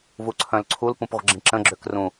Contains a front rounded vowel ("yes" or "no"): yes